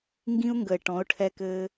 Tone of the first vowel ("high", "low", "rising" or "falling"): high